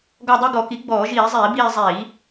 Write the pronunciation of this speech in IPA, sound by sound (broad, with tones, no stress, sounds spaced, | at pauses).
ɡ ɔ˦˨ dˤ i˦˨ ɡ ɔ˧˩˧ k i˩˥ ɡ͡b ɔː˧˩˧ ʒ iː˧˩˧ zˤ iː˧˩˧ b iː˦˨ zˤ iː˧˩˧